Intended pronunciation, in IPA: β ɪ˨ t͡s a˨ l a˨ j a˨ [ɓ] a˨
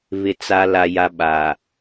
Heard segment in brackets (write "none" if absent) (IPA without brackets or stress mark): ɓ